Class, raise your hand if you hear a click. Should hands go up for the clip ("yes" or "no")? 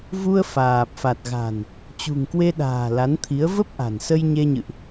no